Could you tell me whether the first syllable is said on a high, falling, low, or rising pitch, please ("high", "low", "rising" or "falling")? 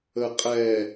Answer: low